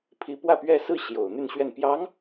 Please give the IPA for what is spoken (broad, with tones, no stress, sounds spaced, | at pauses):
pʰ i˧˥ p w ä˥˧ p ɥ ɛ˥˧ s ɹ̩˥˩ ɕ j o˨˩ ʊ̯ n̪ y˥˧ n ɕ ɥ ɛ˥˩ n p j ɑ˧˥ ŋ